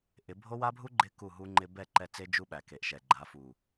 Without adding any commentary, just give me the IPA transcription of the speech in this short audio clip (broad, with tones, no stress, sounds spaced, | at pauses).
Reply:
ʔ ɪ˨˦ bʱ o˦ w a˦ bʱ u˦ ɡ͡ǃ ɪ˦ k u˦˨ ɦ u˦ ŋ͡ǃ ɪ˦ b ɛ˦˨ ǃ ɛ˦˨ t͡s e˦ d͡ʒ u˦ ɓ æ˨ k e˨ ʔ ʃ ɛ˨ ɡ͡ǃ a˨˦ f u˨